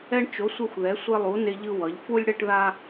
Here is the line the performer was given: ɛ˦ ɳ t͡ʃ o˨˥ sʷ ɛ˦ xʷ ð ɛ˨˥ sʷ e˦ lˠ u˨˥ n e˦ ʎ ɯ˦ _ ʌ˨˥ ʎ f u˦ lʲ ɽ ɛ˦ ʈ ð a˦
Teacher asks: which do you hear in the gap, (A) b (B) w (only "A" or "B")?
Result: B